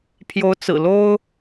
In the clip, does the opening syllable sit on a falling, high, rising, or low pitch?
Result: rising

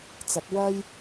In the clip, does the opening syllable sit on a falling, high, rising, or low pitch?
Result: rising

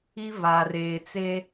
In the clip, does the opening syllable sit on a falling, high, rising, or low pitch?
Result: high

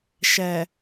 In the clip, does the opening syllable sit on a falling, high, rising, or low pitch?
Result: low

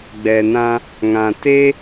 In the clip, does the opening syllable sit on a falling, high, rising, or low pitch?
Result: low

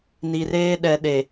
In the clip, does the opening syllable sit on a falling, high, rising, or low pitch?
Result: low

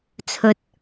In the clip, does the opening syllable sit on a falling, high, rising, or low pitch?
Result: low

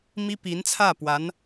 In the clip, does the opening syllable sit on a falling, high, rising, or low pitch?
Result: high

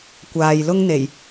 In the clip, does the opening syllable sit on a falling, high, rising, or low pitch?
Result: low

